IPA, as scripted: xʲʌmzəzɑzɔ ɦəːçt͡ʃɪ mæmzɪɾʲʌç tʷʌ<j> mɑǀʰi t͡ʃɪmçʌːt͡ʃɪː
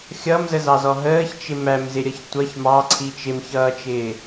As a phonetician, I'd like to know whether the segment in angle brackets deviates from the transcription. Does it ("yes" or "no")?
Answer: yes